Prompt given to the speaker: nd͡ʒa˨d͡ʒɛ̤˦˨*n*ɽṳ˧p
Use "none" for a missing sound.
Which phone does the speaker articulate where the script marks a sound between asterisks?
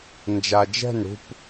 n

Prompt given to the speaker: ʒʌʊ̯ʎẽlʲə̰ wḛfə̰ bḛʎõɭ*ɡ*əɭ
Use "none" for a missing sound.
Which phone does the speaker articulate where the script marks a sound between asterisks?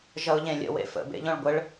ɡʷ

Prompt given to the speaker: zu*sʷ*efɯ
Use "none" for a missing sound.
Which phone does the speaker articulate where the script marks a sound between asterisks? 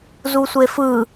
sʷ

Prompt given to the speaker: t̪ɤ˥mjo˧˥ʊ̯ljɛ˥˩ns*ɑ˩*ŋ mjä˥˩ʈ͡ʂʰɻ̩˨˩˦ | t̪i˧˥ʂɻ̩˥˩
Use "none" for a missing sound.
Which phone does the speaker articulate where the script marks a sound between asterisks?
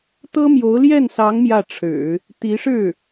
ɑ˧˥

